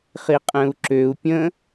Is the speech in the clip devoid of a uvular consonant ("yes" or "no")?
no